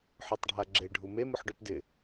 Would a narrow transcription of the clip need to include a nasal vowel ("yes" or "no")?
no